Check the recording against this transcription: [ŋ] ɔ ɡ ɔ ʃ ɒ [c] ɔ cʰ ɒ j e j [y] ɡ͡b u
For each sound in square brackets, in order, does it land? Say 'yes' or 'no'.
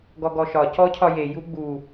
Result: no, yes, no

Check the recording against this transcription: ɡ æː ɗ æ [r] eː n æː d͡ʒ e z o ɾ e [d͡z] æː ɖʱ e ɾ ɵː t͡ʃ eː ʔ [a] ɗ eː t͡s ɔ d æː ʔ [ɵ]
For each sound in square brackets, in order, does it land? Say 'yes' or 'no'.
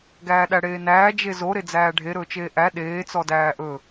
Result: no, yes, no, yes

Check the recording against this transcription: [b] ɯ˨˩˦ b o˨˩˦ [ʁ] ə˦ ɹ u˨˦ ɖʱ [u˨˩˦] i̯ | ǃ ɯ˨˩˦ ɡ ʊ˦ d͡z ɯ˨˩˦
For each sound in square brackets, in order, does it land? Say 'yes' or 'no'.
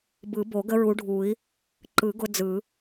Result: yes, no, yes

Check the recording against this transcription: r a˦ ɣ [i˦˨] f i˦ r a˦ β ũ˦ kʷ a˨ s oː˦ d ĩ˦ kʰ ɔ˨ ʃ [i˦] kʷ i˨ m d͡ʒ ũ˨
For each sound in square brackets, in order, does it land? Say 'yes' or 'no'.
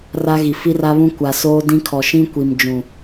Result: no, no

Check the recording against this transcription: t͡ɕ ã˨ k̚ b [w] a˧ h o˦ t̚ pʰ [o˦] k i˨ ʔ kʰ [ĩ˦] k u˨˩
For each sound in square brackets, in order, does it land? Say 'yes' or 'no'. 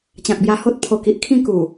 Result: no, no, no

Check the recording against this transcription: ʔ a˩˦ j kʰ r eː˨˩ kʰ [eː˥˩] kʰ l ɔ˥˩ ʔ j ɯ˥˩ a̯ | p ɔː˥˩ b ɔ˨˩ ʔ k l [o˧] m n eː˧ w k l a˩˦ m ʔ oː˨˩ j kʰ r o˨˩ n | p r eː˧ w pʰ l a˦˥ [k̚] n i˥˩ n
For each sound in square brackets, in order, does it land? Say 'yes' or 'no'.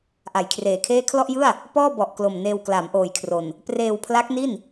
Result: yes, no, yes

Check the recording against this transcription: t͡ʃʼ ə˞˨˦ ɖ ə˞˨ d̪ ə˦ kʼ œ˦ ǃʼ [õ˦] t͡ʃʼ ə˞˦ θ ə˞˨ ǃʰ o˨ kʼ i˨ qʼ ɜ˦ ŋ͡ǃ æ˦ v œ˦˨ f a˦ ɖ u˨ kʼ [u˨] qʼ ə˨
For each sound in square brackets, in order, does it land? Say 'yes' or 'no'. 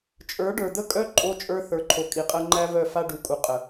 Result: no, yes

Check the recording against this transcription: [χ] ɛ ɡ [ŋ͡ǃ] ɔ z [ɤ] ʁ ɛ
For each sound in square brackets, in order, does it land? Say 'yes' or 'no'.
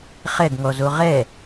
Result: yes, no, no

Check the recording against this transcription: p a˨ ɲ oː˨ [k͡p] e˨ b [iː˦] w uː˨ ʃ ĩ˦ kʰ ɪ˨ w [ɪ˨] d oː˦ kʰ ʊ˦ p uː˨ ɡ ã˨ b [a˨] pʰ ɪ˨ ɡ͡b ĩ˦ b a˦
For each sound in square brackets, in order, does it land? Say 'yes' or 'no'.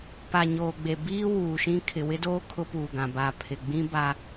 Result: no, yes, no, yes

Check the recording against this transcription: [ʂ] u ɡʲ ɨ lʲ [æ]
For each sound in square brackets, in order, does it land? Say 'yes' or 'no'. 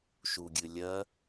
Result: no, no

